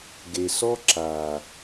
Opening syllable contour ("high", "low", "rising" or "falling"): low